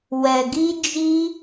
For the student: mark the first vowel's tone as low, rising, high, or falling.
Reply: low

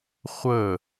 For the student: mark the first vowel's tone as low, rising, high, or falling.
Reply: falling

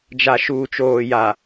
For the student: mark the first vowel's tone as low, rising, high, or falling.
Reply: low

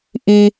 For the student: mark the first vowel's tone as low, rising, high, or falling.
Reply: high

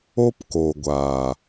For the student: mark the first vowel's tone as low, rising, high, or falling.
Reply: high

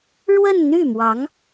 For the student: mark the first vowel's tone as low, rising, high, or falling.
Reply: falling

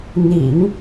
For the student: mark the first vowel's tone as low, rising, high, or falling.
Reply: low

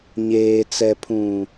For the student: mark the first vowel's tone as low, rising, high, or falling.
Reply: low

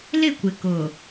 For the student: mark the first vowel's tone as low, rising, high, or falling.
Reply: falling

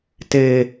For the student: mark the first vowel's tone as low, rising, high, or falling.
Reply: high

